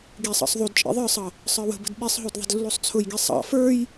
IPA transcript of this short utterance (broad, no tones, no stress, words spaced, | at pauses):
ɡisˤɑ̰sˤ ðˤud t͡ʃʼḭðˤə˞sˤʌ | sˤə˞wə̤bə̤d ɓisˤɦud ðˤə̤dlːusˤt͡sʰʊjɡi sˤɑ̰ fə˞j